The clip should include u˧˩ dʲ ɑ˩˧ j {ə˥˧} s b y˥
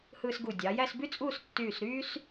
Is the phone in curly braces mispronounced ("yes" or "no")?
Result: yes